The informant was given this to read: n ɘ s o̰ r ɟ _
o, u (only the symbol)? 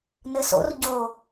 o